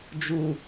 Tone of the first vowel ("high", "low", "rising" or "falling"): low